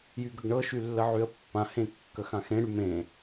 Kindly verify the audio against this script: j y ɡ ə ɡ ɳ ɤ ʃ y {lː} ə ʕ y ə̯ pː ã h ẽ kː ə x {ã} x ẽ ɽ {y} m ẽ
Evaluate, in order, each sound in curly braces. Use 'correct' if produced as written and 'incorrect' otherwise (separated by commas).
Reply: correct, correct, correct